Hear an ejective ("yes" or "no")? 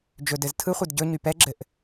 no